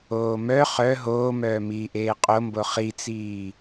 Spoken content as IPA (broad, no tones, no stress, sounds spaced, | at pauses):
oː m œ χ œ ɦ oː m œː m iː ʔ eː qʼ o m b o χ i t͡s iː